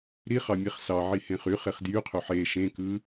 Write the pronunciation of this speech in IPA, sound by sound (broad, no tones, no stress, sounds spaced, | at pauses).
ɾ i χ ɑ mʲ e χ s ɑ ʕ i h ẽ χ y χ e χ d j y qʰ ø ħ e ʃ ẽ k ɯ